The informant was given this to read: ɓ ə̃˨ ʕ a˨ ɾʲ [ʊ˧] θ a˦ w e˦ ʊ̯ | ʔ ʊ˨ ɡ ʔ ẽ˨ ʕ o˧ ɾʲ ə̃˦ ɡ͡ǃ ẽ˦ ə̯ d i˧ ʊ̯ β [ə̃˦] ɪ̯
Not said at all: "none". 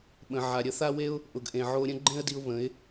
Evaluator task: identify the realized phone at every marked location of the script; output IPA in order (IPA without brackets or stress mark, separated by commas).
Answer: ə˧, ə̃˨˦